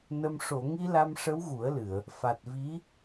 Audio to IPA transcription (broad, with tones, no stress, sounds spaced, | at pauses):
n ə˧ m ʂ o˨˩˨ ŋ i˧ l a˧ m ʂ ə˧˥ w ɣ u˨˩˦ ə̯ l ɨ˨˩˨ ə̯ | f a˨˩ t̚ v i˧˥